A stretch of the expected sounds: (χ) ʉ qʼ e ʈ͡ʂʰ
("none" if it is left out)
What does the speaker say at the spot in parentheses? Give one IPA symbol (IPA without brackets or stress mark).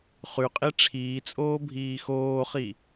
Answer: χ